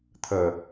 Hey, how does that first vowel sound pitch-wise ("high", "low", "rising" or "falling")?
low